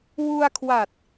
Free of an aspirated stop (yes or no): no